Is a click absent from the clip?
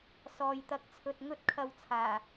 yes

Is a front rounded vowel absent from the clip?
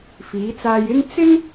yes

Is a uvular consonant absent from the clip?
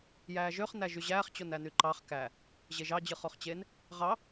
no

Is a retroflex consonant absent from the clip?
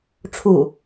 no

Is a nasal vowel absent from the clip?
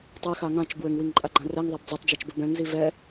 no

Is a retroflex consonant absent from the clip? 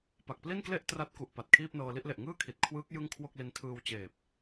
yes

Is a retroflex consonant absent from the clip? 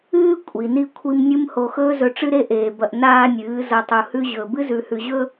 no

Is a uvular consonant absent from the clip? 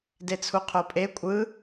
no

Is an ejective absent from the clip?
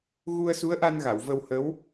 yes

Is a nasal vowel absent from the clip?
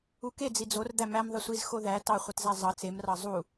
yes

